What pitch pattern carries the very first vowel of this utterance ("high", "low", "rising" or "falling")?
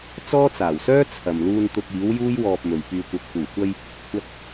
high